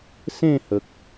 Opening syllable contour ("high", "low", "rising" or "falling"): falling